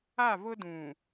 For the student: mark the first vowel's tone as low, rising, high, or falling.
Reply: falling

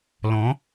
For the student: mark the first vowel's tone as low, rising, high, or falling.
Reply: rising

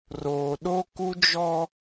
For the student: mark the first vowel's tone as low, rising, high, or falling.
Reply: low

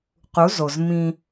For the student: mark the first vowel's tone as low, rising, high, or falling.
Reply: rising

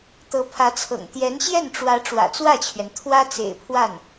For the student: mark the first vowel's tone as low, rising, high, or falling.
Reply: rising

